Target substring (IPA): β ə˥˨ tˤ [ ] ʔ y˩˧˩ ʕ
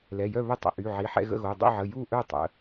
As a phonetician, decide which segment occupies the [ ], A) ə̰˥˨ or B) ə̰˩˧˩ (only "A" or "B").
B